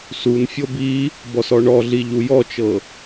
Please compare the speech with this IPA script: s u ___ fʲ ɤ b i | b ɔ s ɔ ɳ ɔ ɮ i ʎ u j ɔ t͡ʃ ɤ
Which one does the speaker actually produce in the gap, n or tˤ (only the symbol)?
n